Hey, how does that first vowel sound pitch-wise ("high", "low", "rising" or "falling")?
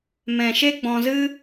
low